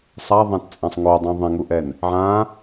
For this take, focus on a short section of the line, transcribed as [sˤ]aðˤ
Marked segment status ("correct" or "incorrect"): correct